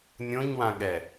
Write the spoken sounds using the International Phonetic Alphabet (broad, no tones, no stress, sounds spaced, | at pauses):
nʲ õ ɲ w ã ɠ ɛ